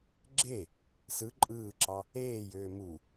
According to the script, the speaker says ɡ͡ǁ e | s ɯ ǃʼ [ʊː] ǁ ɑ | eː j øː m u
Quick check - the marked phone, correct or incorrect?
incorrect: ɯː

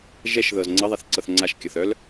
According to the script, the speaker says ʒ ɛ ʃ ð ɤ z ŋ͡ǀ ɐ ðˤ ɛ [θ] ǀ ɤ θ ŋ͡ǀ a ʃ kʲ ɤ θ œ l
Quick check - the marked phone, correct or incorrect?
correct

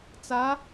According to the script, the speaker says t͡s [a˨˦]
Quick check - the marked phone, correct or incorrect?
correct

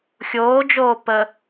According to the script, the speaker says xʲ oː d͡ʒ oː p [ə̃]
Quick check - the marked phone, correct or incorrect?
incorrect: ə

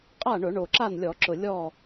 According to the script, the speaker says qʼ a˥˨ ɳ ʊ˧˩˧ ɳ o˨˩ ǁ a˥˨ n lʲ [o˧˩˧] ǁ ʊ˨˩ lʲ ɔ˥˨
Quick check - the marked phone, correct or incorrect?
incorrect: ɔ˧˩˧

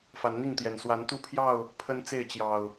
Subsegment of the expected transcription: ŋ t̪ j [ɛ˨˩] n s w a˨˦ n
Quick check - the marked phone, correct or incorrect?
correct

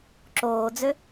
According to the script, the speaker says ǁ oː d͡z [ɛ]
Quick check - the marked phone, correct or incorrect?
incorrect: ø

